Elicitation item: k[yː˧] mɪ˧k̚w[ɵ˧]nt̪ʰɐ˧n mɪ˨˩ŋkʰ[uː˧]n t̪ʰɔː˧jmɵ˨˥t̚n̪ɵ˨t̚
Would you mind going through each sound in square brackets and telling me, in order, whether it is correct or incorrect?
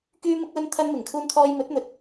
correct, correct, correct

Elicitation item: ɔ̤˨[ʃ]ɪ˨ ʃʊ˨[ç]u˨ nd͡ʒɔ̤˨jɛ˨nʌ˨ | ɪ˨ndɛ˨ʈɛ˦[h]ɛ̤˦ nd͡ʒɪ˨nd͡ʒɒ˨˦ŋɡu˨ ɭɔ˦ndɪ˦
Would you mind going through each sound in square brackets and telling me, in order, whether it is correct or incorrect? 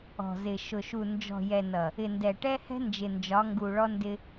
incorrect, incorrect, correct

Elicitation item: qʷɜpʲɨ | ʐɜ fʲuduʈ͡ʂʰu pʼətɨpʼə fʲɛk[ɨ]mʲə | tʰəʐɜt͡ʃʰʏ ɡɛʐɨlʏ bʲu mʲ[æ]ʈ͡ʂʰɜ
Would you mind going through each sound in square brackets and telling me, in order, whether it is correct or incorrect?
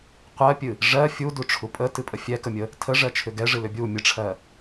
incorrect, incorrect

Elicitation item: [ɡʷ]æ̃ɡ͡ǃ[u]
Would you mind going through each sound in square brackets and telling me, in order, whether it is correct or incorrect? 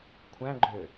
incorrect, incorrect

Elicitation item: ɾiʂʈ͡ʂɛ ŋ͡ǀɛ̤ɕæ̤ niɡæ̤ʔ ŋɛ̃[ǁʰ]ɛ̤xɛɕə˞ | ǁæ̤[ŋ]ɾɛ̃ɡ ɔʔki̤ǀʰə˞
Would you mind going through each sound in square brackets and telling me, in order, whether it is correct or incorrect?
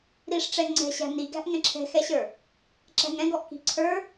correct, correct

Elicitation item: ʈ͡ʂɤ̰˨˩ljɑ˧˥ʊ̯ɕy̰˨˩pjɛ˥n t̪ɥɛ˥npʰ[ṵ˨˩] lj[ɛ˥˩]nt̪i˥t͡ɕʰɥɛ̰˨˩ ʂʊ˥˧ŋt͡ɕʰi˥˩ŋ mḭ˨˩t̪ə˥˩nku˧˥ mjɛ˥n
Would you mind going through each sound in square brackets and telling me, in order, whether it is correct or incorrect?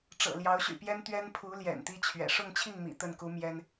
incorrect, incorrect

